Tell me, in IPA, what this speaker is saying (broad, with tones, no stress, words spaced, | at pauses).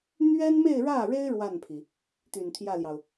n̪ɥɛ˥nme˥˧ɪ̯ɻä˥˩ɻe˥ɪ̯ ɻwa˥˩npʰi˩ | t̪y˨˩nt̪ʰjä˥˩ljɑ˩ʊ̯